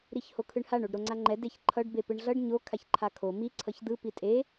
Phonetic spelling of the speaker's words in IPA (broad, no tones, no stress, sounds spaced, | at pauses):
ɾ i ç h o kʰ ɯ ɳ h a ɳ o ɖ ɾ o ŋ͡ǀ a ŋ͡ǃ ɛ d e ç ǃʰ ʌ ɖ b e p ɯ ɳ ɮ ʌ ɖ ɲ o kʰ a ç ǃʰ a kʰ o m i ǀʰ ʌ ç d̪ ɯ p i tʼ e